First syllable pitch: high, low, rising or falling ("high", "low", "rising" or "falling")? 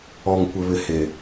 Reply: low